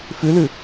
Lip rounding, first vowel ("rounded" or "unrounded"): rounded